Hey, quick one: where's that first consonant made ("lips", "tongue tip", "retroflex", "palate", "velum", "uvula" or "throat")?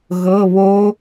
velum